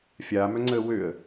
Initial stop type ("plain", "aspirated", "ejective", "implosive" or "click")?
click